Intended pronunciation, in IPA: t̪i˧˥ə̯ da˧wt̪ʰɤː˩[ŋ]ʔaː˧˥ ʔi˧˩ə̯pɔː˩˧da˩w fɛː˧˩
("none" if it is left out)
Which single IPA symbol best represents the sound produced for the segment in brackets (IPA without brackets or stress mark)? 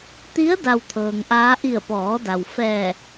ŋ